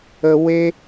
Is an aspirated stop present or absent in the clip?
absent